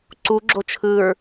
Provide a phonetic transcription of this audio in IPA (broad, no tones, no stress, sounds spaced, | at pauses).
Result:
ǀ u ɡ͡ǁ o t͡ʃʰ ɯ ɹ